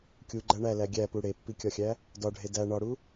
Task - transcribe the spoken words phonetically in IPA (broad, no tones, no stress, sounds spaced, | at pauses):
kʲ u ɡ͡ǃ æ ɳ æ l æ ɡʲ æ p u ɽ e pː i kʲ ɒ xʲ æ | d ɒ ɖʱ e d æ ɳ ɒ ɽ u